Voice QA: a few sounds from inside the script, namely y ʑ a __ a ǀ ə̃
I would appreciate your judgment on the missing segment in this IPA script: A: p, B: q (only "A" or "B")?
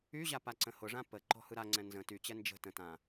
A